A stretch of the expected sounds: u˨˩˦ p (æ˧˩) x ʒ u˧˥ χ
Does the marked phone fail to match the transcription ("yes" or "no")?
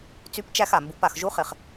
yes